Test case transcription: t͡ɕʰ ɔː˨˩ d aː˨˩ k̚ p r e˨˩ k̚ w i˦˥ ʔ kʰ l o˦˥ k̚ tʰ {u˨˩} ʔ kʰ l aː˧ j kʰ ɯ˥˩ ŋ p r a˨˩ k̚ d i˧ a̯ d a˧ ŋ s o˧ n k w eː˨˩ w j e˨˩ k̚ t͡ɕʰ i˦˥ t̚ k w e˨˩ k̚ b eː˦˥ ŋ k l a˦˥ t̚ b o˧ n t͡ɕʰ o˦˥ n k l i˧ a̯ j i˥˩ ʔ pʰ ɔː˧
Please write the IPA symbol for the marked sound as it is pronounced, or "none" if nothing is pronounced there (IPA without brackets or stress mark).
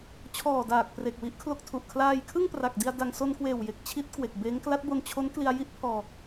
u˨˩